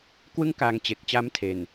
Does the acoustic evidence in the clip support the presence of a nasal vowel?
no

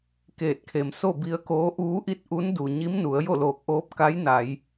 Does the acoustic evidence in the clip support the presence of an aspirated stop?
yes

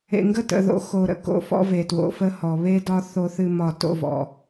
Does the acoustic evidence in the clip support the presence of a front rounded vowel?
no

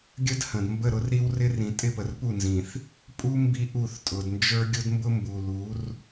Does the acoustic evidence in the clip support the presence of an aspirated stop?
no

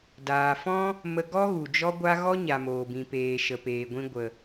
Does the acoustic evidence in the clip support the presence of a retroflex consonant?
no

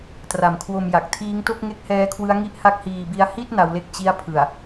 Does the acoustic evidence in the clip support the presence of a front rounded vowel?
no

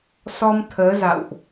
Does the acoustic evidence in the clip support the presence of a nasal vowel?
no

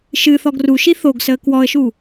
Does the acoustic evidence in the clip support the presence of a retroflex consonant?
no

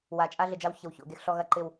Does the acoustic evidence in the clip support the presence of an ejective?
yes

